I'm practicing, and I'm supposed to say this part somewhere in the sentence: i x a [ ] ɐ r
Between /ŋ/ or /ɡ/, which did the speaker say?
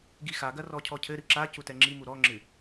ɡ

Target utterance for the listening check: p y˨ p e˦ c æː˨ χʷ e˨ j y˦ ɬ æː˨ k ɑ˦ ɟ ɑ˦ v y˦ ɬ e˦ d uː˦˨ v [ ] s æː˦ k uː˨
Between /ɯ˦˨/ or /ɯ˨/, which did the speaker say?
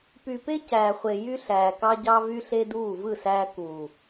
ɯ˦˨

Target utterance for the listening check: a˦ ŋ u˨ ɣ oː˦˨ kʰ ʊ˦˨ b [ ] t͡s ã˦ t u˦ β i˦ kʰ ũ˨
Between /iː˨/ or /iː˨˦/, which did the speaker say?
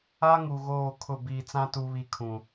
iː˨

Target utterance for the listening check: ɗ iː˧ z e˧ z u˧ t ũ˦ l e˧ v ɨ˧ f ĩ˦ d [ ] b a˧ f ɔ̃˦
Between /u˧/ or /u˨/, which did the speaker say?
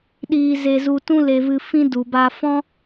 u˨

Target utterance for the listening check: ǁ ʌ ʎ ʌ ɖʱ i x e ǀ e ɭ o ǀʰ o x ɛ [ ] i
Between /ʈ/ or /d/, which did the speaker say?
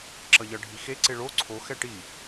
ʈ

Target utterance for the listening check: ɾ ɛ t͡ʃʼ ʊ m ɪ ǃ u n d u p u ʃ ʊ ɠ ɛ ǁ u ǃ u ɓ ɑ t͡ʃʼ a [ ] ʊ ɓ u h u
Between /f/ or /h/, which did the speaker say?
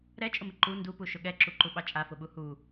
f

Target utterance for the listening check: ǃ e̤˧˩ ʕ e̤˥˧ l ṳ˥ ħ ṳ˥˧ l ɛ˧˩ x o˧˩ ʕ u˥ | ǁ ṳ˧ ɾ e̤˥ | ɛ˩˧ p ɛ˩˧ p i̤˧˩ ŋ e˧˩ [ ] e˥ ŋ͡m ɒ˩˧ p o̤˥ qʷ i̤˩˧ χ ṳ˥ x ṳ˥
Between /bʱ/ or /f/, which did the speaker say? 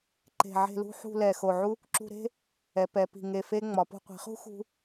f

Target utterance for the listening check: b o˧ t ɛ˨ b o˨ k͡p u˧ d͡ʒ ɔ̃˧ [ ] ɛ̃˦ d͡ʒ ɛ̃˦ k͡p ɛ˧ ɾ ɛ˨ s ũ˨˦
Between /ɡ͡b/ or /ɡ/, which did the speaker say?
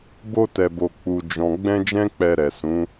ɡ͡b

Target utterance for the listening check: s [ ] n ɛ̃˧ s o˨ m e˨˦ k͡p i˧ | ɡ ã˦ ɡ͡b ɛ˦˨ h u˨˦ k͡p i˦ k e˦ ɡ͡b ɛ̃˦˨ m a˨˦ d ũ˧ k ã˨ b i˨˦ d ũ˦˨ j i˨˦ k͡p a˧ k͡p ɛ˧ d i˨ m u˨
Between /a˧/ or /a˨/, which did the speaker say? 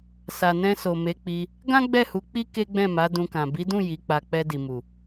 a˨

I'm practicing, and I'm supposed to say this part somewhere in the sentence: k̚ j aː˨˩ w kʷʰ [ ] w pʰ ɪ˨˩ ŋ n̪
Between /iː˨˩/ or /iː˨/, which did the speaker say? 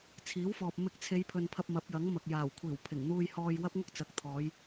iː˨˩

